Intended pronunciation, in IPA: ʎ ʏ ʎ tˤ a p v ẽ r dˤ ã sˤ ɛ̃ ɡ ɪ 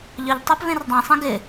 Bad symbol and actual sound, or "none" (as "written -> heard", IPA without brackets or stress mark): none